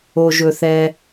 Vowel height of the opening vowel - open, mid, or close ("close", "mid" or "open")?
mid